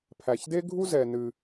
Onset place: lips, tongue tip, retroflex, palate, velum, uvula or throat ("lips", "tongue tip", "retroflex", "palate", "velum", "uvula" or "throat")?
lips